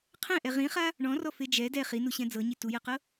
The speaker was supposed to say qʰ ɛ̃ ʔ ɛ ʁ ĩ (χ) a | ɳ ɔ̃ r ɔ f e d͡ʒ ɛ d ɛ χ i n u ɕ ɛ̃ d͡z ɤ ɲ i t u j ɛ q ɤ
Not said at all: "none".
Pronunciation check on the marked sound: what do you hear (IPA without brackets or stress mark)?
χ